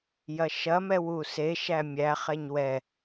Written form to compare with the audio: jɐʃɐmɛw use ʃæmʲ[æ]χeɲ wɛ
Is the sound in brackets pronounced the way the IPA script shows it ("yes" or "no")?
yes